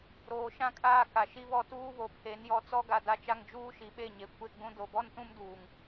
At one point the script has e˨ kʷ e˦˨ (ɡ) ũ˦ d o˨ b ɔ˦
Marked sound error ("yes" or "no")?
yes